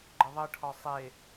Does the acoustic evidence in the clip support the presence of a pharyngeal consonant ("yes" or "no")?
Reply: no